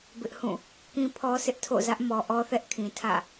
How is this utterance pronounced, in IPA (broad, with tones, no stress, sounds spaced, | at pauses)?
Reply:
b ɪ˦ ʔ h ũ˦˨ | k ĩ˦ pʰ ɔ˦ s ɪ˦ ʔ tʰ o̰˦˨ z ä˦ ʔ m ɔ˨ ʔ ɔ˦ θ ɛ˦ ʔ kʰ ĩ˨ tʰ ä̰˦˨